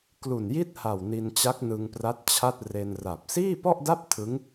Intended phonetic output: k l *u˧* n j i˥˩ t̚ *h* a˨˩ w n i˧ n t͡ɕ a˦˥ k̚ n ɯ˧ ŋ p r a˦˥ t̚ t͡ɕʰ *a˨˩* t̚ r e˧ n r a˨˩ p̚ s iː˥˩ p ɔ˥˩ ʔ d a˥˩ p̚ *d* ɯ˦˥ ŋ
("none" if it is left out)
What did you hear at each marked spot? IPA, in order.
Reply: u˨˩, h, a˥˩, tʰ

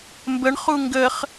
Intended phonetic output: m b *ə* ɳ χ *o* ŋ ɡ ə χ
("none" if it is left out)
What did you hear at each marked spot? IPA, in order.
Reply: ə, u

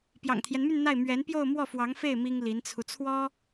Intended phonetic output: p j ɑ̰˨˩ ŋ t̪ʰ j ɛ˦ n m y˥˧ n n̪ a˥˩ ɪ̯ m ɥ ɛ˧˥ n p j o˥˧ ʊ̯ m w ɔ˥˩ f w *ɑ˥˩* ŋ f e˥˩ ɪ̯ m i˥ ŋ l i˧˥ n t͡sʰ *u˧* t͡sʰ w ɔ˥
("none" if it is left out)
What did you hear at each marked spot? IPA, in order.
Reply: ɑ˧˥, u˧

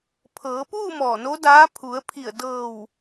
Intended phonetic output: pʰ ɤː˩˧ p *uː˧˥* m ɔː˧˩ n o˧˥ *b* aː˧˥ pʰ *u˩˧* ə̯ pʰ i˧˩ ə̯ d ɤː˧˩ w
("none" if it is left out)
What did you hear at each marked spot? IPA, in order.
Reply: uː˥˨, d, u˩˧

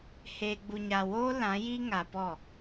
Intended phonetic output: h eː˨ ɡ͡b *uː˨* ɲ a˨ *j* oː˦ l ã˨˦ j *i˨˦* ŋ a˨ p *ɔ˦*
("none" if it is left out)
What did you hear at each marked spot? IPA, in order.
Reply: u˨, w, i˦, ɔ˦˨

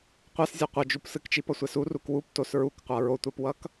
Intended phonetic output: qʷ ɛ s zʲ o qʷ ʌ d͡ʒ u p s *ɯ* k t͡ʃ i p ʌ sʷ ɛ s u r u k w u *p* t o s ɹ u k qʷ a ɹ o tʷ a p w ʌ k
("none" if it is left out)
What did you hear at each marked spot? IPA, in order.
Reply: ɯ, p

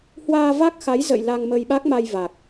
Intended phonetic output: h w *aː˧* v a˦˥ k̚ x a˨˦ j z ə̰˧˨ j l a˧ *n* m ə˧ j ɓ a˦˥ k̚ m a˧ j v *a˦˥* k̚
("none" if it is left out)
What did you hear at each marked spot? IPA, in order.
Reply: aː˧, ŋ, a˨˩

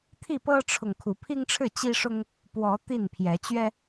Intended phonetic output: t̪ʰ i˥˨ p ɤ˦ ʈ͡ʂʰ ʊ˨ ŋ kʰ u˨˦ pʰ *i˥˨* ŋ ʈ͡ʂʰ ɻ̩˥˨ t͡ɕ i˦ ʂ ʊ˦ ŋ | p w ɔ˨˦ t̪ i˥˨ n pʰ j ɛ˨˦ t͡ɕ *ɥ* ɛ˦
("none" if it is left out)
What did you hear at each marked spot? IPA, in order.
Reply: i˦, ɥ

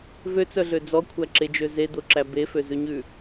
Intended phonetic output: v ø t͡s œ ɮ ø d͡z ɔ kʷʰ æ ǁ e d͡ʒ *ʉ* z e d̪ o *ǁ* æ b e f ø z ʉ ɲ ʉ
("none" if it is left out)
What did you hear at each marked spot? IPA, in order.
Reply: ø, ǁ

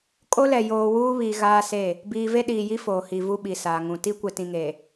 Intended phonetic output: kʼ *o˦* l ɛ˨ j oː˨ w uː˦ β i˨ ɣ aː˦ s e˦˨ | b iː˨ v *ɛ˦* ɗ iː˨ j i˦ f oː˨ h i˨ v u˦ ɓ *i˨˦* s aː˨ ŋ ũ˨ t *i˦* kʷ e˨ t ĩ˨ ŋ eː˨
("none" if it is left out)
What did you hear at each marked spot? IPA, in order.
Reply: o˦, e˦, i˨, i˦

